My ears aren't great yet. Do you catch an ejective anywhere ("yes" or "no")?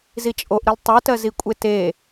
yes